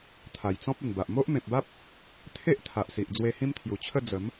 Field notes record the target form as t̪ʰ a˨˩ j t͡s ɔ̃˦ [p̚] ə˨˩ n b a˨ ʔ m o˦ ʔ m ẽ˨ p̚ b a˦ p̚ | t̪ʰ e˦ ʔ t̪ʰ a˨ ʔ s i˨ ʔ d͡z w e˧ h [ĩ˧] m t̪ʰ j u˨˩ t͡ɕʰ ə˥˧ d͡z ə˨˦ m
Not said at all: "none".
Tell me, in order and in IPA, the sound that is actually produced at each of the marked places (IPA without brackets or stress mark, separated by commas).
p̚, ĩ˦